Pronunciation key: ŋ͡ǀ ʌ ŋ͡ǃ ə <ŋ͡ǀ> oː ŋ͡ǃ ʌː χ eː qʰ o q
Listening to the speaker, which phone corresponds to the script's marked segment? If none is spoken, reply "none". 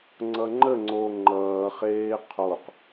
ŋ͡ǀ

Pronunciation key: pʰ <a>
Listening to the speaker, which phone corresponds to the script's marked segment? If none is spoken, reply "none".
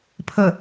ə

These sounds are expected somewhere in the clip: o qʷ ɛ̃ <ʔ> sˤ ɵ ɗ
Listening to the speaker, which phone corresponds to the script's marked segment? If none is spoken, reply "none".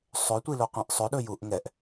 ʔ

